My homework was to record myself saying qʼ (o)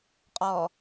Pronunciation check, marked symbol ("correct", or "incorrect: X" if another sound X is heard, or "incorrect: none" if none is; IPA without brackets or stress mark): incorrect: ɔ